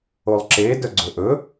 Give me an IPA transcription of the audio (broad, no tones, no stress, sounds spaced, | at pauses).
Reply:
o lˠ ǁ e d œ ɡ͡ǀ ɵ ʔ ɵ